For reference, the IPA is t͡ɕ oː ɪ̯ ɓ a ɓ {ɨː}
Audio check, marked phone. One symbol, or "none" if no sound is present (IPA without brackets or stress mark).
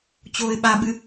ɨ